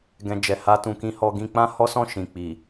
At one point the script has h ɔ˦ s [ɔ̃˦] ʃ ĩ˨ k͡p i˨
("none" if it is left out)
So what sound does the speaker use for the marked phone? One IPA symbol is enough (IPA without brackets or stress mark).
ɔ̃˦˨